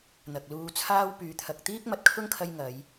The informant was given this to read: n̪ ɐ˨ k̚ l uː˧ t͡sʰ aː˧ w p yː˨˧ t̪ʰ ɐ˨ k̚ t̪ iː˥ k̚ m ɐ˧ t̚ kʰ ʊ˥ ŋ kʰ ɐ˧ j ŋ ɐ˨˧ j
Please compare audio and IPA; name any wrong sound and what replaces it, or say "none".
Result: none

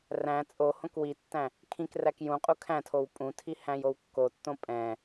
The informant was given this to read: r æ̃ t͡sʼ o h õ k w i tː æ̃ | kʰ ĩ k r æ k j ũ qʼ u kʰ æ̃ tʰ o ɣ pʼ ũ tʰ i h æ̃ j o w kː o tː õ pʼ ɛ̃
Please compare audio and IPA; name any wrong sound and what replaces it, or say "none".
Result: ɣ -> w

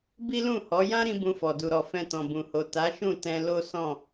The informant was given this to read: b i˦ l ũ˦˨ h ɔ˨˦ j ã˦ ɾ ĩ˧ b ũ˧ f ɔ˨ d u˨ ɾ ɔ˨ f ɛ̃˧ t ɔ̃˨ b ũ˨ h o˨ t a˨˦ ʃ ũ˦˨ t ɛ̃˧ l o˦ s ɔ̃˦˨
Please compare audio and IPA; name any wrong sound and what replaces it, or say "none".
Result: none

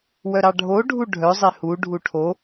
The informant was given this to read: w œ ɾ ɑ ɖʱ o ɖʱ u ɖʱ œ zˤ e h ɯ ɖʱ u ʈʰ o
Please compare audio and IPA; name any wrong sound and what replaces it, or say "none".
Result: ɯ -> u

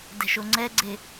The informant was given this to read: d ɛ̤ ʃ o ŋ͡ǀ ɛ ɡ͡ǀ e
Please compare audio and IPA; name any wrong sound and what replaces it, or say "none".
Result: none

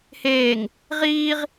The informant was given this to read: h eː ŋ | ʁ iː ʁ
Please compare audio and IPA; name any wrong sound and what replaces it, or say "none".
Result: none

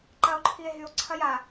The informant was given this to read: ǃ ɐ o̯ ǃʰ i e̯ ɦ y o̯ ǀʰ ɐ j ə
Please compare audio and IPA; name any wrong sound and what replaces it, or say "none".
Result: ə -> a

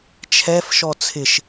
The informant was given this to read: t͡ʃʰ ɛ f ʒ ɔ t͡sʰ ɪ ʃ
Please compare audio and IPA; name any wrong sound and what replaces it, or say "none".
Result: ʒ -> ʃ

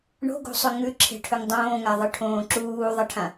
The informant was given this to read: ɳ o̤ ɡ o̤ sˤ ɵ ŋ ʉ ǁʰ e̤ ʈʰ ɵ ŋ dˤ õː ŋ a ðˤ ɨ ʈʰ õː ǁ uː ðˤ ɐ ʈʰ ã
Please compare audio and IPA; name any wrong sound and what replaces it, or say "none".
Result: none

